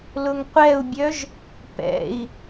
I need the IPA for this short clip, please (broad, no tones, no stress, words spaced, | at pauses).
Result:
lʊŋqʷɛu̯bʲœʒ | pɛ̰i̯